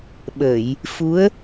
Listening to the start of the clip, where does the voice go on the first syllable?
low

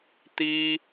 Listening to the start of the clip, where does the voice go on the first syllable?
high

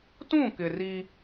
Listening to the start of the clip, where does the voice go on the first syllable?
falling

